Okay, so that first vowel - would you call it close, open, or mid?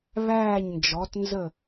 open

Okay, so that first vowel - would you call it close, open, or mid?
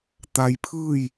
open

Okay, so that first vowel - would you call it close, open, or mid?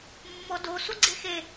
mid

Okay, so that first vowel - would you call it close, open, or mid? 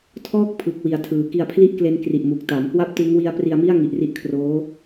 mid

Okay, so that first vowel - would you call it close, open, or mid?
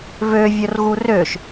mid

